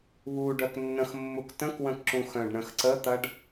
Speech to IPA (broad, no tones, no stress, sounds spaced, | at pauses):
β u ɖ œ k nː ə̃ x mː u k t ə̃ k w ə̃ k ǁ ũ x œ̃ ɖ ɳ ə̃ x ǀ ə t̪ ɐ ɖ